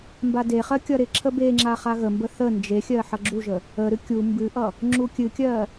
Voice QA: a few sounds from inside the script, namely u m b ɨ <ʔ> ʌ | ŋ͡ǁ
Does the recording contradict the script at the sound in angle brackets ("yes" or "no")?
no